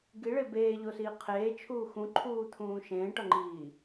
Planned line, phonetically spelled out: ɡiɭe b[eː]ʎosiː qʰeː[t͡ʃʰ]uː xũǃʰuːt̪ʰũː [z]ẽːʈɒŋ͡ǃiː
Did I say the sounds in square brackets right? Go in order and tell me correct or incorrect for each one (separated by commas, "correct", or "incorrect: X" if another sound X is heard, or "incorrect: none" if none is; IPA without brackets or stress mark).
correct, correct, incorrect: ʃ